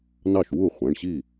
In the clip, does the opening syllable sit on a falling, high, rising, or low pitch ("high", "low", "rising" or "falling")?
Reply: falling